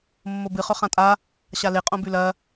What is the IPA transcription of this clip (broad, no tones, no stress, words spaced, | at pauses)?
mːobɨ χɵχãtʼa | ɕale qʼõbʉlɐ